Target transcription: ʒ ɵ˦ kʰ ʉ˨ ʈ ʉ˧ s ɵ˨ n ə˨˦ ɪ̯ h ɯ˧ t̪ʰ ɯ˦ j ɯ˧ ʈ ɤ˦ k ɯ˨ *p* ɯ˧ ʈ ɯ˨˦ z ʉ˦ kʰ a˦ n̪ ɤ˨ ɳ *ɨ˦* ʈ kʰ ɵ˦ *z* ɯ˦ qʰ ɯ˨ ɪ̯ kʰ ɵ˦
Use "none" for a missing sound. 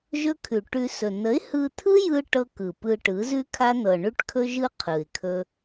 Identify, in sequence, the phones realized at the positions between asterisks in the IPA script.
p, ʉ˦, ʒ

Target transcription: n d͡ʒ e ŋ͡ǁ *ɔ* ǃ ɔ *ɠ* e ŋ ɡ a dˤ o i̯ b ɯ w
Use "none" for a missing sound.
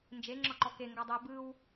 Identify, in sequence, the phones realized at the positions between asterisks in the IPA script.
ɔ, k

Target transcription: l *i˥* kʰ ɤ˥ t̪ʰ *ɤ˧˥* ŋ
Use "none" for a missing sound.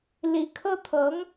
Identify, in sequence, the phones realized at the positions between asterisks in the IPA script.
i˧˥, ɤ˧˥

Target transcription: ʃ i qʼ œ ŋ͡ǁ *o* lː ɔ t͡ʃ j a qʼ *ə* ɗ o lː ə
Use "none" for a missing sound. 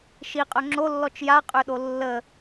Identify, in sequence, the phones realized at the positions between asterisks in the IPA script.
o, ø

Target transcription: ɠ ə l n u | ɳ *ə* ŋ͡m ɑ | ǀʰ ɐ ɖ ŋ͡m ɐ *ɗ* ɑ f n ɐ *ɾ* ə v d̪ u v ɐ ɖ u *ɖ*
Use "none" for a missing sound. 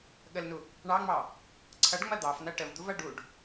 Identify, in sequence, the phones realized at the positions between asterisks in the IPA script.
ɑ, d̪, ʈ, ɖ

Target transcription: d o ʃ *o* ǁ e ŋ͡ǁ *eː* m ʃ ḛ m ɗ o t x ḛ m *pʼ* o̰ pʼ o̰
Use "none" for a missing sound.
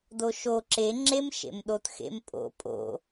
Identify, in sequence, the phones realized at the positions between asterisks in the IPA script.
o, e, pʼ

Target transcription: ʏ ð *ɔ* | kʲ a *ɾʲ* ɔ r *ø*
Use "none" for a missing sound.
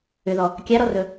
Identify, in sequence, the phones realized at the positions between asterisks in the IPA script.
ɔ, ɾ, ɵ

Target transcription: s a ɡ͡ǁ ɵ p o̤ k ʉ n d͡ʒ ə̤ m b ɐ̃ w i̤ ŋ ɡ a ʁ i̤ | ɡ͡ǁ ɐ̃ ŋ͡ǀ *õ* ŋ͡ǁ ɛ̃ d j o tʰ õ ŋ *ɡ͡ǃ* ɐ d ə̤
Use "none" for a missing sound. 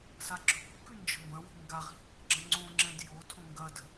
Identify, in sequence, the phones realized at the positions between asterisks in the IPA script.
õ, ɡ

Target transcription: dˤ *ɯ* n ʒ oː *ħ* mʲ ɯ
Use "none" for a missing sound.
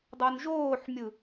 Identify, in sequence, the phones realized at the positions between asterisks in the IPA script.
u, ħ

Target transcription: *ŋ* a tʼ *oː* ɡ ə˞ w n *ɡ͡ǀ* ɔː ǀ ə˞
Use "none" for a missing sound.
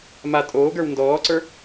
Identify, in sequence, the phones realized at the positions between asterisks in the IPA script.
m, oː, d

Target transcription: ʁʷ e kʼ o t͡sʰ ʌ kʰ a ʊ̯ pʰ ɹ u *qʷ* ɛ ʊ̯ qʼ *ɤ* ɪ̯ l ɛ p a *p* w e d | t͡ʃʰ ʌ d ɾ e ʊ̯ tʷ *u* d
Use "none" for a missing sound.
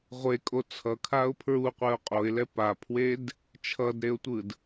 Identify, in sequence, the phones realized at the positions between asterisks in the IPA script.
qʷ, o, pʰ, ɯ

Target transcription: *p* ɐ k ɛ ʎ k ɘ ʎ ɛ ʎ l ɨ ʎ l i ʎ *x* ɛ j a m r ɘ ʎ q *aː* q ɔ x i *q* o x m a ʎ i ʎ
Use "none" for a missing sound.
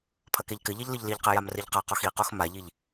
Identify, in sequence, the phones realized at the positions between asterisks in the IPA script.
pʰ, q, a, q

